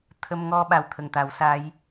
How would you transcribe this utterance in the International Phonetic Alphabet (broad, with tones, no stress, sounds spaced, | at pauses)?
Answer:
t̪ʰ ə˧ m ŋ ɔ˧ ɓ a˨˩ w t̪ʰ ə˨˩ ŋ t̪ a˨˩˦ w s a˧˥ j